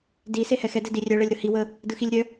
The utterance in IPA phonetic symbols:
d i s e h ɛ x ɛ d ɛ d i rʲ œ ɭ ɛ lʲ ɾ ɯ h i w ə | d ɯ x i lʲ ɾʲ œ

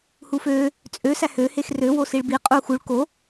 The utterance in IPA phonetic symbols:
h u f ø | t͡sʼ ø s æ h ø h e x r ø w o s i ɭ b i qʼ u x u ɭ k o

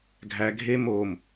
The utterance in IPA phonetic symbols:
ɡʱ æ ɡʱ e m o m

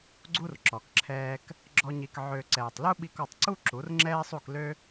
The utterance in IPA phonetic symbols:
ɡ͡ǀ u˦ r ǁ ɔ˨ k ǁʰ ɛː˧ k | ɡ͡ǁ ɔ˦ ɲ i˧ k ʕ ø˧ ǀ ɛː˨ tˤ l u˦ ɓ i˧ k ɔ˧ tˤ ǀ u˦ ǁ u˨˦ r ŋ͡ǁ ɛː˦ sˤ u˦˨ k l ø˦

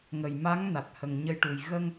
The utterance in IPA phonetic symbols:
ŋ ə˨˩ j m a˧˥ ŋ n a˨˩ t̚ h ə˨˩ ŋ ɲ ə˧ j ʈ u˨˩ j ɣ ə˧ ŋ

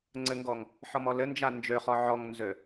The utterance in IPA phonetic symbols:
ŋ͡ǀ ɘ ŋ ɡ ɔ ŋ | ħ ɔ m ɔ l ɘ n d͡ʒ a n d͡ʒ ø χ ɔ ʕ ɔ ŋ n z ø

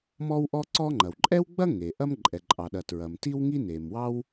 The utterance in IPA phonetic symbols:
m ɔ˥ w ʔ ɔ˥ ǀ ɔ˥ ŋ͡ǃ ɐ˩ w ǃʼ ɛ˥ w ɡ͡b ɐ˥ ŋ e˩ ʔ ɐ˥ m ǃʼ ɛ˩ ǃʼ ɑ˩ ɗ ɐ˩ t ɹ ɐ˩ m t i˥ w ŋ i˥ n e˩ m w ɑ˥ w

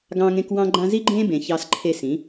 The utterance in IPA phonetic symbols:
ɡ ɑ̃ː˧ ŋ ẽ˧ k w ɑ̃˦ ɡ͡ǃ ã˦ z i˦ ɡ͡ǃ ẽː˦ b ẽ˨ ç ɑ˧ s ǃʰ e˧ s ĩ˨˦

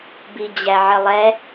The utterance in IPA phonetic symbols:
b i d͡ʑ æ ʕ ə lˠ ɛ

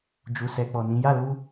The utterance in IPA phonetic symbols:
d͡ʒ u˨ s ɛ˨ k͡p ɔ˨ n ĩ˨˦ j a˦˨ l u˧

